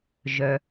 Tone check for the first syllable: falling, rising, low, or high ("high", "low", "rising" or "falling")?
low